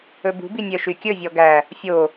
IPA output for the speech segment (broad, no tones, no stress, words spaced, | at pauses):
ɵbṳbi nʲœʃykʲɵvʲɔ ɡæ | fʲo